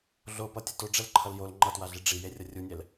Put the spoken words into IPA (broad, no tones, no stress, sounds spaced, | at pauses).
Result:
ɮ o p ʌ tʲ ʌ t o ɖ͡ʐ ɛ l ǃʰ ʌ l j o l ŋ͡ǃ ʌ t w a ɮ i ɖ͡ʐ i j e rʲ ʌ rʲ u nʲ ɛ l